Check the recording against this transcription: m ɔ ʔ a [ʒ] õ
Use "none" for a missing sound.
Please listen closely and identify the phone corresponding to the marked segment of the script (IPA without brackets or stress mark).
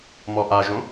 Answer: ʒ